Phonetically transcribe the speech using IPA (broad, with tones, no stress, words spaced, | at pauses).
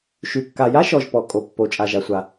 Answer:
ʃy˩kːa˩ja˥ʃɔ˩ʒ pɔ˩kʼo˩pːo˩ t͡ʃʼa˩ʒa˩sʷa˩